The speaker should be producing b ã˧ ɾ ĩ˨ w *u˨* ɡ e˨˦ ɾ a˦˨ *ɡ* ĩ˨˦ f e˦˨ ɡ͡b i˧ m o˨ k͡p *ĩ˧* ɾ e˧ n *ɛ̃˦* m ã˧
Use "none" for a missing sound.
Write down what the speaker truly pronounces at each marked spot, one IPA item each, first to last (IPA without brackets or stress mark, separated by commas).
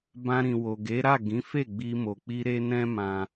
o˨, ɡ, i˧, ɛ̃˦